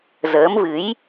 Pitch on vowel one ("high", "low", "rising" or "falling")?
rising